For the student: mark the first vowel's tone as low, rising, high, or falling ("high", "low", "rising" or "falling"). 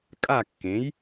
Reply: falling